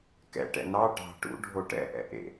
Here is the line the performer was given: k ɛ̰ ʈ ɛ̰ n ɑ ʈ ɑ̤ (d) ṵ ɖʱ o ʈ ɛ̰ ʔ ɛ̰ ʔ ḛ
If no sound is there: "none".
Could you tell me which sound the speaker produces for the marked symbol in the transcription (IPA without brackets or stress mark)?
ʈ